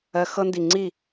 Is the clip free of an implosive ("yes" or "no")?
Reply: yes